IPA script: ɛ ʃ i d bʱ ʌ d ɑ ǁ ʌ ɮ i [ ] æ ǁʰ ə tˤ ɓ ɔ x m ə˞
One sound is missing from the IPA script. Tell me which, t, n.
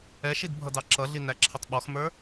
n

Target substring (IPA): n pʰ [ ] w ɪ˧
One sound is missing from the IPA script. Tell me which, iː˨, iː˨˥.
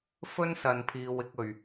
iː˨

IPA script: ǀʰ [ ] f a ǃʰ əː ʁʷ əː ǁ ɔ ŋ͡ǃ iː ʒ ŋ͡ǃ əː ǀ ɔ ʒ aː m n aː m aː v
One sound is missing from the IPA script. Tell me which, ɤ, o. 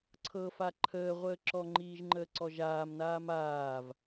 ɤ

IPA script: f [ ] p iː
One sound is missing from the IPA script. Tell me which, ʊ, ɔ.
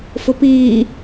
ʊ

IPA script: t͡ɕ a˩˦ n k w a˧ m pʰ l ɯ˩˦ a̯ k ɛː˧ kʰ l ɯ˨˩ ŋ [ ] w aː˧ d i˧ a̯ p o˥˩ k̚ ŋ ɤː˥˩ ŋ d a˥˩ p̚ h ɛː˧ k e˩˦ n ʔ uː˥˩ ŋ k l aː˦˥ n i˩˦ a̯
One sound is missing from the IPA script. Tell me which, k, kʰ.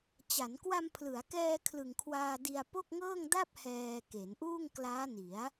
kʰ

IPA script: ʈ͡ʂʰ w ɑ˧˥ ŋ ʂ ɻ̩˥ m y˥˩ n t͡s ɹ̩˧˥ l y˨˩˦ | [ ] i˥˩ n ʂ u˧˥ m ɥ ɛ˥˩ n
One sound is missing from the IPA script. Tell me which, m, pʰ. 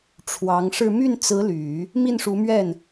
m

